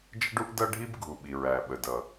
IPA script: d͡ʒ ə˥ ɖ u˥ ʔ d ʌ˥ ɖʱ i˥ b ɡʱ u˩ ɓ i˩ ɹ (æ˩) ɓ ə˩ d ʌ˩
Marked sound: correct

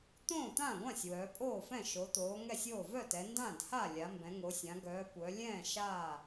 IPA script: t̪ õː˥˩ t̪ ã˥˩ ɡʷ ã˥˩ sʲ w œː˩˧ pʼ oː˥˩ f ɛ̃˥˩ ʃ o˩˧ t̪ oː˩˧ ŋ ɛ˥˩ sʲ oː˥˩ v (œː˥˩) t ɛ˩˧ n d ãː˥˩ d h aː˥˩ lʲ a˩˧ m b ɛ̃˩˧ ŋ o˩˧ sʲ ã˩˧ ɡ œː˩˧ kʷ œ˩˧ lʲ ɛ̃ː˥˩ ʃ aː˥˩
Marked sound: incorrect: œ˥˩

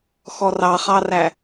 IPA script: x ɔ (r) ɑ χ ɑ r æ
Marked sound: correct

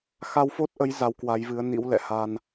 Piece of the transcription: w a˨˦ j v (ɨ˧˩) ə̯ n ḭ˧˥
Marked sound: incorrect: ɨ˨˦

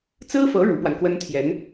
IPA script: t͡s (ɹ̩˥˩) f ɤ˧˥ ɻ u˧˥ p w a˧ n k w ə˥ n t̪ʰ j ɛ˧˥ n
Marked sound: incorrect: ɹ̩˥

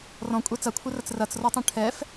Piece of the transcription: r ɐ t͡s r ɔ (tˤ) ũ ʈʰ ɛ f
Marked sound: correct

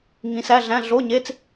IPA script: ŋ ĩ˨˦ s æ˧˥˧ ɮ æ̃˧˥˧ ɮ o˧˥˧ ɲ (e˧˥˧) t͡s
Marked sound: correct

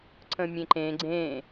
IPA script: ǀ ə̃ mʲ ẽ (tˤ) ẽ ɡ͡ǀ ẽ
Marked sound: incorrect: ǃ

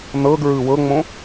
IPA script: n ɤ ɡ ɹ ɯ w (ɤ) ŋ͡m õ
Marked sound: correct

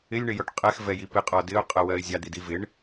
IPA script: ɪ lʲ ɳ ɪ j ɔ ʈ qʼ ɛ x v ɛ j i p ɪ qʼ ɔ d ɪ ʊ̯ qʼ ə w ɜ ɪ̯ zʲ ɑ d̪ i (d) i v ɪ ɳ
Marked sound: correct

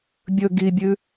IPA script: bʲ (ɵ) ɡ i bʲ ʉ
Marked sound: correct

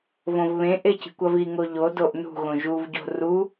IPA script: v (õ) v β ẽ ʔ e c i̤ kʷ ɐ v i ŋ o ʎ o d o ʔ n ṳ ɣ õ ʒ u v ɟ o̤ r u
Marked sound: correct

